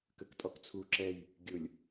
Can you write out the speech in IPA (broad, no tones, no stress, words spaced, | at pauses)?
kəktʼɔk t͡sʰu ǁɛj | ɡʲʊlʲ